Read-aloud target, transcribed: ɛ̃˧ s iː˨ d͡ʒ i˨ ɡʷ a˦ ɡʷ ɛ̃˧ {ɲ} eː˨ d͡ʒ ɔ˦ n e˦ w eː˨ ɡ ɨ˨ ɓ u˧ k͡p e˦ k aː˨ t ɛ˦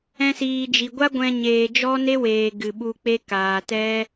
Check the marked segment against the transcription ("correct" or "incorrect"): correct